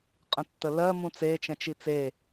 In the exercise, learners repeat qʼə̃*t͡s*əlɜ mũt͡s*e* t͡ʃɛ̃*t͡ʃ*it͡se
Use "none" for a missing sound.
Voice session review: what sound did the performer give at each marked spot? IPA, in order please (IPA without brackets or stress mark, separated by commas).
tː, e, t͡ʃ